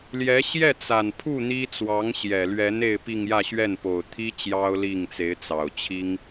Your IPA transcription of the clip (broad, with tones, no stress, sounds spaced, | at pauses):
l j ɛ˧˥ ɕ j ɛ˥˩ t͡s a˨˩ n pʰ u˥˩ n̪ i˥ t͡s w ɑ˧˥ ŋ ɕ j ɛ˨˩ l ɥ ɛ˧˥ n e˥˧ ɪ̯ p i˥˧ ŋ j ä˥˧ ɕ ɥ ɛ˥˩ n p o˨˩ ʊ̯ t̪ʰ i˥ t͡ɕ j ɑ˥ ʊ̯ l i˥˩ ŋ t͡s e˧˥ ɪ̯ t͡s ɑ˨˩ ʊ̯ t͡ɕʰ i˥ ŋ